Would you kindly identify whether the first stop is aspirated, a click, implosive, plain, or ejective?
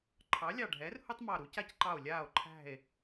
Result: click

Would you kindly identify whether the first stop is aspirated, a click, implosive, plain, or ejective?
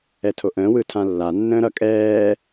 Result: aspirated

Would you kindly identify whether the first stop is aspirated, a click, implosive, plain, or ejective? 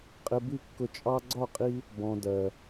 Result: ejective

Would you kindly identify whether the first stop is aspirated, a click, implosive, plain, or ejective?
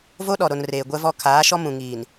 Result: implosive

